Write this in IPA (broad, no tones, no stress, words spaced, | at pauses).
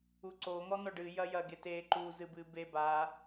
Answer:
uǀo ŋɔnɔɖɨ jɐjɐ ɡete ǃu zɨbɨbe ba